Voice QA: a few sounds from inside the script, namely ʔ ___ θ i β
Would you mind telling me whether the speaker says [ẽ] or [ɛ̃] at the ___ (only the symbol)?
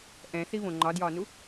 ɛ̃